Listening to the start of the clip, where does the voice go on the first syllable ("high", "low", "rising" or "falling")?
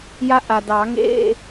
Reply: high